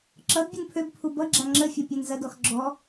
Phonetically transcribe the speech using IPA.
ǁʌd bʲənpʰøbpʰu bʌɡ͡ǁa ŋ͡ǁəfʲɐ pʲanzɐdɔx ɡ͡ǁɔ

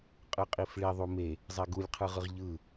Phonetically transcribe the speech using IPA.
qʼɯqʼifɭi ðˤume | zˤeɡulʲqʰɯʁɯʁ ʎɯ

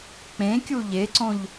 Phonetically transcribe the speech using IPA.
k͡pẽkʲu ʎeǀõʎ

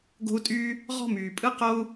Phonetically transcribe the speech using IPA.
ɡo̤˥u̯tʼyː˥ | ʁɔ̤˥myː˩pʼɯ˥ qo˥u̯

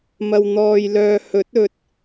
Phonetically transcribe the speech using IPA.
mɐ˧wn̪ɔː˧jlœː˧ hɵ˨˥t̚ɵ˨t̚

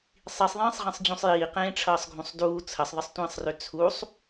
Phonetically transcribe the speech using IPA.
sˤisˤðˤĩːsˤʁĩsˤ d͡ʑũsˤjiː qẽːʈ͡ʂʰʌːsˤɡʱũsˤduː t͡sʰəsˤðˤəsˤtʷĩːsˤrø t͡sʰusˤ

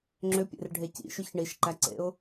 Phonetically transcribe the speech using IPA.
ŋ͡ǁʏpʲḛrɖʱe cḭʃʏç ɳiʃǃæǀḛʊ̯

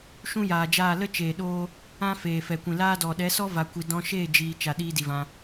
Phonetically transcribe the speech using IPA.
ʃũ˦jaː˨d͡ʒaː˦˨ lə˦t͡ʃeː˨ɗoː˧ | ã˦feː˨ fɛ˨kʷĩ˨laː˦ dɔ˨ ɗɛ˨˦sɔ˦ va˨kʷi˨ dɔ̃˧ʃeː˦˨ d͡ʒiː˨ t͡ʃa˨ ɗiː˧ di˨vã˧

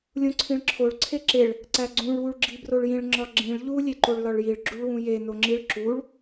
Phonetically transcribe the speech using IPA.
lʲũǀʰĩɭǁʰoɭ ǀʰeǁeɭ | ǀæɡ͡ǀũɭ wuɭɡ͡ǁibroɭjĩɭ ŋ͡ǁɒɡ͡ǁĩɭ ʎu lʲeǃoɭlɒɭjiɭ ɡ͡ǁuɭwũje noŋ͡ǁiɭ ǁuɭ

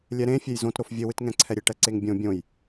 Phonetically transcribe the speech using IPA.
lʲɛɾẽfʲej zõtɾof vʲɘwɨtŋɛ̃ǀʰɛ ɾʲeʈɛǀeŋbʲõ bʲõj

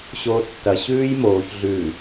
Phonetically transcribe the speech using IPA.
ɕoːtːɐ ɕʉːjmoːç ɮʉ

